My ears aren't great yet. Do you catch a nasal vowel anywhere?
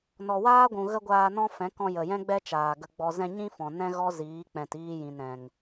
yes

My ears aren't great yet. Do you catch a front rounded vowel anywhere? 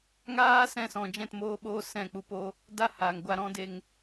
no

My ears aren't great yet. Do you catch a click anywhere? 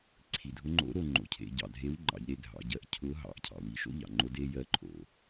yes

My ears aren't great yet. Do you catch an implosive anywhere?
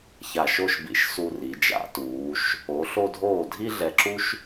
no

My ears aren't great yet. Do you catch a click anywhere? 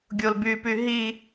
no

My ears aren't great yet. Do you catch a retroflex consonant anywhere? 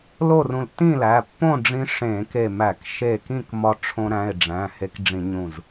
yes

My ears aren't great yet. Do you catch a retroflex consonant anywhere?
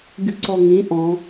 no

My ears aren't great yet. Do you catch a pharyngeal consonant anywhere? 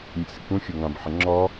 yes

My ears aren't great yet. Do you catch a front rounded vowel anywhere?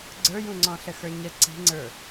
no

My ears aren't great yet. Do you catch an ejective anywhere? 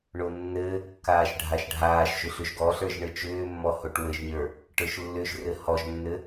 no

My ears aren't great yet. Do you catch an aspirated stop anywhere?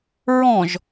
no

